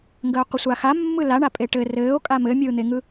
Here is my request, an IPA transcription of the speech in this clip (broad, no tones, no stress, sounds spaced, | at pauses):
ŋ ɡ əː qʷ ɘ sʷ a x a mː ɯ l a ɳ a pʼ e ʈ ɘ r ɘː o̯ kʼ a m ɘ mʲ ɯː n̪ e ŋ ɯ